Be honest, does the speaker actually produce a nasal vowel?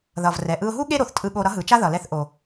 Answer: no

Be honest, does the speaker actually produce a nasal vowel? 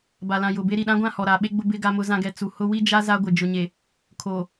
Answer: yes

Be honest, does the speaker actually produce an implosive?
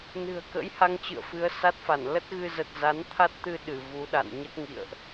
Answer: yes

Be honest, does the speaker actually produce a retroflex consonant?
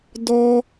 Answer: no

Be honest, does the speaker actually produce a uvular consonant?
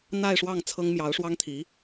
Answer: no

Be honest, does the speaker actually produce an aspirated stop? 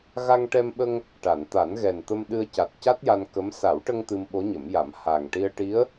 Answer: no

